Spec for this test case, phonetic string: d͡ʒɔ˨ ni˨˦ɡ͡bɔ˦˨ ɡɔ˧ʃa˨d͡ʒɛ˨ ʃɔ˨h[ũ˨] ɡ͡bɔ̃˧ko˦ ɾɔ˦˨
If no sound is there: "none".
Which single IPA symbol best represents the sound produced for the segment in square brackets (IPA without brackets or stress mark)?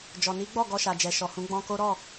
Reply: ũ˨˦